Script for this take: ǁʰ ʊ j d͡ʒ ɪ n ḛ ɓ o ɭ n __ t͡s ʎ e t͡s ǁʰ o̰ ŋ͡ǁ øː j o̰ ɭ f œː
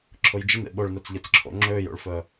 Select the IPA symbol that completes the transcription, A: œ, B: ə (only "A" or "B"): A